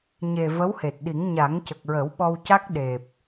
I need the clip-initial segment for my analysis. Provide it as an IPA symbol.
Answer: ɲ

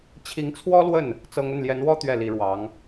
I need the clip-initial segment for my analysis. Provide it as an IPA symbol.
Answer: t͡ɕʰ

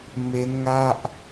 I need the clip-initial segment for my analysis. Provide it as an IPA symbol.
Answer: m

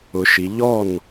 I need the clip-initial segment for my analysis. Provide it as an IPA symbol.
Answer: ʊ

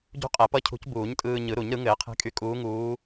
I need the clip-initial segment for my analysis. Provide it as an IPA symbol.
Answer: ɟ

